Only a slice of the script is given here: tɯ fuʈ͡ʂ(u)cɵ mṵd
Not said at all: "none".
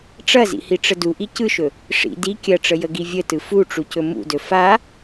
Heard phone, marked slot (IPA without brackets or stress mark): u